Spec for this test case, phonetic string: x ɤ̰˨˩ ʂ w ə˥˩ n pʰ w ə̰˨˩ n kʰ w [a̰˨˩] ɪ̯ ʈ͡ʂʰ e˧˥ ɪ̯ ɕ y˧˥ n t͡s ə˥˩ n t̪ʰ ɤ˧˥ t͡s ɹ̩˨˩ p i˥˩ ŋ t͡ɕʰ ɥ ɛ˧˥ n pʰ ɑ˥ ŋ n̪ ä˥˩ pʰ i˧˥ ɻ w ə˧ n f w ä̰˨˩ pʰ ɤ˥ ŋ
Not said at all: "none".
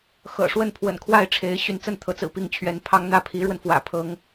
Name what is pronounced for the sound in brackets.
a˥˩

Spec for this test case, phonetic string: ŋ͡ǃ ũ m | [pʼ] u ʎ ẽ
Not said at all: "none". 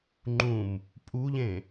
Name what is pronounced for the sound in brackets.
pʼ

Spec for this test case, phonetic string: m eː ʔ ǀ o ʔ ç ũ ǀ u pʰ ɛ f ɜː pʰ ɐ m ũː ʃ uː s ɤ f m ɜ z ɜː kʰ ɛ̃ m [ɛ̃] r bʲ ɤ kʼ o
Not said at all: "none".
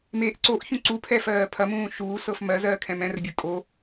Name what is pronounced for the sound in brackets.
ɛ̃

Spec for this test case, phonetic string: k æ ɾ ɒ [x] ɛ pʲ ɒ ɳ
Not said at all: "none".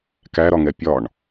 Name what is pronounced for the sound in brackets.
ŋ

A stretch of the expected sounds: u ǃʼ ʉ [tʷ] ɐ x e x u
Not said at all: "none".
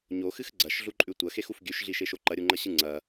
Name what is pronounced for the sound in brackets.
tʷ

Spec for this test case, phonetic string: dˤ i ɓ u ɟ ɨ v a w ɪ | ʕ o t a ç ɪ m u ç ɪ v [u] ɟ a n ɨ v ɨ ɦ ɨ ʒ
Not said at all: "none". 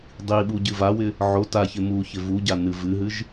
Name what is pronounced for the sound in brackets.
u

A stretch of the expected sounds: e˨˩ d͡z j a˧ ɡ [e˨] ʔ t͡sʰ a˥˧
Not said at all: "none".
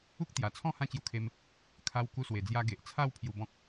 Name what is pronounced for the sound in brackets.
e˨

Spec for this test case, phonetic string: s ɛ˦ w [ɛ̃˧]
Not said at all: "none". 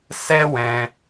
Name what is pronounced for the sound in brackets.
ɛ̃˧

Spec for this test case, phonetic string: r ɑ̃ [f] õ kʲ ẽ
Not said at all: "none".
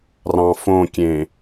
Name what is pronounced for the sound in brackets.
f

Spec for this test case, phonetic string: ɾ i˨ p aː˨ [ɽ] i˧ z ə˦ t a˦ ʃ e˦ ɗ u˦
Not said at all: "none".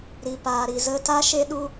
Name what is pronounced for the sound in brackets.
ɾ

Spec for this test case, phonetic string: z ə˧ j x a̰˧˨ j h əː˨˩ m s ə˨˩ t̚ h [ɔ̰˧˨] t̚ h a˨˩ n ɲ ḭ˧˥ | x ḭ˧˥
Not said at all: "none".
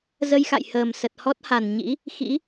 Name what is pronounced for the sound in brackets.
ɔ˦˥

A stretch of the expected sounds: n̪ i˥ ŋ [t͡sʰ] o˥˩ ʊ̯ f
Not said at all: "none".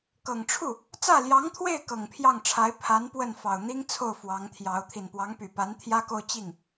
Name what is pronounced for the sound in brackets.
t͡sʰ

